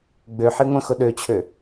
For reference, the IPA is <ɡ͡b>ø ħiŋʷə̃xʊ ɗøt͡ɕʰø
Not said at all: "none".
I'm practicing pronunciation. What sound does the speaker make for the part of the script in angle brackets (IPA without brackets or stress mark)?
ɡ͡b